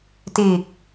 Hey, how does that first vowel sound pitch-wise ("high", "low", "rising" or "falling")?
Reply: low